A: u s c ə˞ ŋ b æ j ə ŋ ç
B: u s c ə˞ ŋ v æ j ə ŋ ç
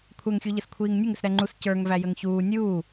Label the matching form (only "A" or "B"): B